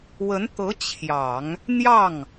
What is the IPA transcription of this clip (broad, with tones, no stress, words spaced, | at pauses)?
wə˧˥nt̪ɤ˧˥ t͡ɕʰjɑ˨˩˦ŋ | n̪jɑ˥˩ŋ